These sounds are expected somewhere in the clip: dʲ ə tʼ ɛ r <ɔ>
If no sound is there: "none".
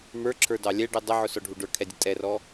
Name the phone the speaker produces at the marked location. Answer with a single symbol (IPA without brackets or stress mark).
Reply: ɔ